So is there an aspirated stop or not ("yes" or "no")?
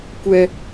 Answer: no